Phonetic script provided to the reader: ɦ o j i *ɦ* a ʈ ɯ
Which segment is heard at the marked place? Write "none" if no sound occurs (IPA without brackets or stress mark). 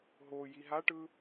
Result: ɦ